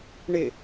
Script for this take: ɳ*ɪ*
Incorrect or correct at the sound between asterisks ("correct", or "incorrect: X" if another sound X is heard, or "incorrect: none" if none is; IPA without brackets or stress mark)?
correct